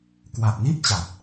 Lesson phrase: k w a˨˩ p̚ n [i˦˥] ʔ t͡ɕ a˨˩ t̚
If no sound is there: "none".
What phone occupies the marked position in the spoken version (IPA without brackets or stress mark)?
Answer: i˥˩